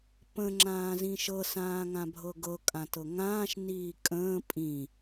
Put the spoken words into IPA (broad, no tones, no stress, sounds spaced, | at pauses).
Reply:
p ə̃ ŋ͡ǁ ãː z ĩ ʃ ɤ s ãː ŋ ã bʱ ɤ ɡ ɤ kʼ ã t ɤ ŋ ãː ʃ n iː kʼ ə̃ː pʼ ĩ